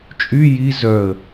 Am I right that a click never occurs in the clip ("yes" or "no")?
yes